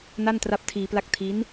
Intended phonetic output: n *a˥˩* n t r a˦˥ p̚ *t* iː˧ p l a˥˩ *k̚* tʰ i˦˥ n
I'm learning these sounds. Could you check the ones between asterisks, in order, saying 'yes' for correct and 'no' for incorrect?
yes, no, yes

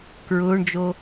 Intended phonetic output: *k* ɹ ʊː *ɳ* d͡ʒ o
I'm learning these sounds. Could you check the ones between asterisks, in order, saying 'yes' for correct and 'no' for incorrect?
yes, yes

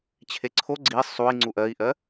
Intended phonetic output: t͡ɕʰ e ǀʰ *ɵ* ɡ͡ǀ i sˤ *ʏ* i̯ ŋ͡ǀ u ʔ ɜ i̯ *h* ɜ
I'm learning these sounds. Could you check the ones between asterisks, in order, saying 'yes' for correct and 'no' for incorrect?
no, no, no

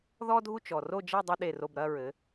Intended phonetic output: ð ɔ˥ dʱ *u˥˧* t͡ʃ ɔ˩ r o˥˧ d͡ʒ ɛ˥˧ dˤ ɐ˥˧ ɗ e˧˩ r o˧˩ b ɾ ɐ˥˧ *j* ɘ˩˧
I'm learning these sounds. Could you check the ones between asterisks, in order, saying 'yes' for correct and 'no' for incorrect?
yes, no

